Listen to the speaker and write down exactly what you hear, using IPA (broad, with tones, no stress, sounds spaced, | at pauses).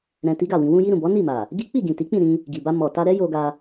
ɾ ɛ̃˧ t i˦ ɡ a˦˨ w ĩ˧ w ũ˧ j i˧ ɾ ũ˨ b ɔ˨˦ n i˦˨ m a˨ | ɡ i˦ k͡p i˦˨ ɡ ĩ˨ t i˨˦ k͡p ĩ˦˨ ɾ ĩ˧ | ɡ i˨ b a˧ m ɔ˨ t a˧ ɾ ɛ˦ j o˧ ɡ a˧